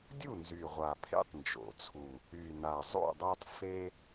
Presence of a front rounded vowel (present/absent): present